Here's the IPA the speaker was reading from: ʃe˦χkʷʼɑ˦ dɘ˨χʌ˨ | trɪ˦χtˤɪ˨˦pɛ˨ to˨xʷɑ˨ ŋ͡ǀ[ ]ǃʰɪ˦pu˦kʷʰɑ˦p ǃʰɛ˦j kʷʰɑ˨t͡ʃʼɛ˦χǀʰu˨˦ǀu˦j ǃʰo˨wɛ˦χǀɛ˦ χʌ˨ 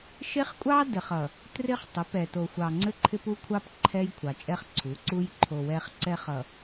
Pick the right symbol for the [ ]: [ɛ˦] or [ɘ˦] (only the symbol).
ɘ˦